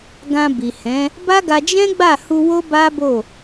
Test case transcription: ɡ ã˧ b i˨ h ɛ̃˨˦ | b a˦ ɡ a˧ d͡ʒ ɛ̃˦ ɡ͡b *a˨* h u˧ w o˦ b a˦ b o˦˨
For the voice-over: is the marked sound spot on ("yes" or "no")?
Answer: no